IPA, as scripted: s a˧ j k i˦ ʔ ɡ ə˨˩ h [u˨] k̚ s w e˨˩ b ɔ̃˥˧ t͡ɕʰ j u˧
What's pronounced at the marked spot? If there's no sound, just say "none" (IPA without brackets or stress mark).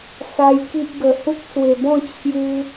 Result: u˦